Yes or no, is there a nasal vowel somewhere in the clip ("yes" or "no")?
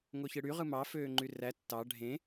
yes